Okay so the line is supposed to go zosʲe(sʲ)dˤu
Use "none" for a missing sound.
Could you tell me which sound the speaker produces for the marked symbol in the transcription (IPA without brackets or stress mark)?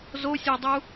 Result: none